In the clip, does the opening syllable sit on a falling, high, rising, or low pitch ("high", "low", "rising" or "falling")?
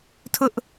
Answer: high